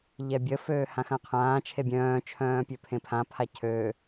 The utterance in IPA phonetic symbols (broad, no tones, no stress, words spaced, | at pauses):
ʎɛbʲə føːhãxãqʰãː t͡ʃʰebʲœ̃ː t͡ʃʰœ̃ːpʲøpʰẽpʰã pʰacʰø